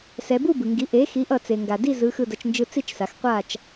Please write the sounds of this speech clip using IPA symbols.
s ɛ˩˧ b u˥˨ b ɯ˩ ŋ ɡ i˩˥ ʔ e˩˥ x i˩˥ ʔ ʌ˧˩ t͡s e˩ ŋ ɡ a˩ d i˥˨ z ɯ˩˧ x ɯ˧˩ d ʌ˩˧ t͡ʃ n d͡ʒ ɯ˧ t͡s i˥˨ t͡ʃ s a˩˧ x qʷ a˥˨ t͡ʃ

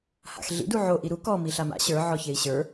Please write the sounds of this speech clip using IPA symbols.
h a̰ x ɮ ḭ d u ʕ o ʔ i ɾ u k ɔ m i ɬ a m a̰ ɕ ə˞ ʕ ɔ ç e i̯ ɕ ə˞

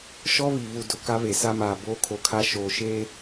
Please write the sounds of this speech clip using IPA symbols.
ʃ ɔ˦ β i˨ β u˨ d ʊ˨ k a˦ β e˨ s a˦ m aː˨ b oː˦ kʰ o˨ kʰ a˦ ʃ oː˨ ʃ eː˦

